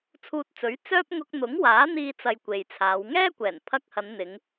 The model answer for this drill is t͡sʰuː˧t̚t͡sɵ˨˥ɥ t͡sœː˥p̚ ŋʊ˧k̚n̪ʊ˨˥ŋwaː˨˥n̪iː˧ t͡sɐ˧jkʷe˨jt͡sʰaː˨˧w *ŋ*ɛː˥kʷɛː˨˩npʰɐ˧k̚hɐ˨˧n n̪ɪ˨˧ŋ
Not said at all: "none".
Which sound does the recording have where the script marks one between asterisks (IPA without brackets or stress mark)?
ŋ